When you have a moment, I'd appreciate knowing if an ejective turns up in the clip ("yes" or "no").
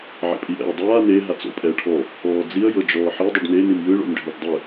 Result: yes